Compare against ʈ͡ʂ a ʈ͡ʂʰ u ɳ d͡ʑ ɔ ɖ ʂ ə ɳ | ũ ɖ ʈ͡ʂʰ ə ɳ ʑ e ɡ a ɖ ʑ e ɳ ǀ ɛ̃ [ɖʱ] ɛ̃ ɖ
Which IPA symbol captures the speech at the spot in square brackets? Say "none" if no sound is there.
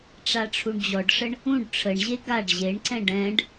ɖ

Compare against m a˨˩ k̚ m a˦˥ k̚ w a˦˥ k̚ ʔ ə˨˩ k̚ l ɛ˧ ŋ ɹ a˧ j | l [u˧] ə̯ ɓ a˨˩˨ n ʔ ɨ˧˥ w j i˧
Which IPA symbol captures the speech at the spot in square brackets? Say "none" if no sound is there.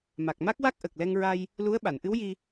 u˧˥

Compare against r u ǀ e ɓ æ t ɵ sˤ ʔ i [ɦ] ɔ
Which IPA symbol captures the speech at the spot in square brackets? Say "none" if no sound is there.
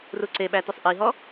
ɦ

